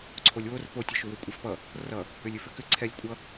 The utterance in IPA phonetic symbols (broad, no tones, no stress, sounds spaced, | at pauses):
ǀʰ o lʲ w o r p o tʲ ʌ ʃ ʏ w ʏ kʷʼ ɛ f p ʌ | r ʌ | ʏ lʲ ʏ f ʏ k ʏ ǀʰ ɛ lʲ kʷʼ ʌ